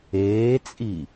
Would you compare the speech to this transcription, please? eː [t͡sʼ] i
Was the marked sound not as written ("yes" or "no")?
no